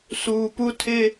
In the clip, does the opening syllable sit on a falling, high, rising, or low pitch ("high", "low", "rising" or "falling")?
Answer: low